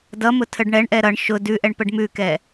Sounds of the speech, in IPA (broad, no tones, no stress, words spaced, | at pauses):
dʌmʊ tʰəɖɳɛɳʔɛ ɾʌɳ ʃʊ dʉʔɛɳ pəɖmʉkɛ